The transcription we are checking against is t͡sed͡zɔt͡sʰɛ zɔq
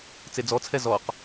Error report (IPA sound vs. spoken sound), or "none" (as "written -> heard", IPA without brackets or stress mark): none